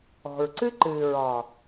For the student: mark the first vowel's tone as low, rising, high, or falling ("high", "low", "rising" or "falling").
low